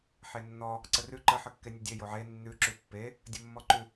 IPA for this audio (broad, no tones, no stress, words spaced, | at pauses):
ħenːɔ | ǀərʉ ǃə ħəkːenʲədʲe joʕe nːʉ ǁʉpːe | dʲəmːɔǃʉ